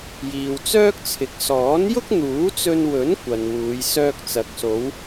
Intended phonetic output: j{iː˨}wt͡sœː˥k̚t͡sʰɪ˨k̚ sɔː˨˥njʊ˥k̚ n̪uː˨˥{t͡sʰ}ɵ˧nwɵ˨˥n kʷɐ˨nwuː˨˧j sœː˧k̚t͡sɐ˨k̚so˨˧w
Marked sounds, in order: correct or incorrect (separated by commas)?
correct, incorrect